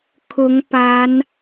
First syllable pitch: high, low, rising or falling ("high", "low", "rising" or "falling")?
rising